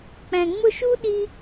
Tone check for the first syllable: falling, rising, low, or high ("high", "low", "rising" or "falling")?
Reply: low